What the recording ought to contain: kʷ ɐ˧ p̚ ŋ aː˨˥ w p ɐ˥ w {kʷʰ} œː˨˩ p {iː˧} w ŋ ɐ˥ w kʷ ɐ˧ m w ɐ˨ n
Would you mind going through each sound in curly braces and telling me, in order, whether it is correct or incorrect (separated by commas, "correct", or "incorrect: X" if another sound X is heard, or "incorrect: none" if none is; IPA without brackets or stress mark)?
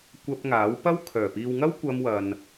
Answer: incorrect: kʰ, incorrect: iː˨